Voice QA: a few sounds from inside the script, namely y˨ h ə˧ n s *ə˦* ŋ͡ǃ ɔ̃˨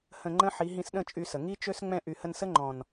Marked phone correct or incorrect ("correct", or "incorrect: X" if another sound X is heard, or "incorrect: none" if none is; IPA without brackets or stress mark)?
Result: correct